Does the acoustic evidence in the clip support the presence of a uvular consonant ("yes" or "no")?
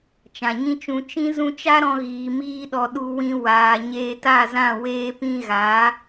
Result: no